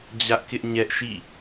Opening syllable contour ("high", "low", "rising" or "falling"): high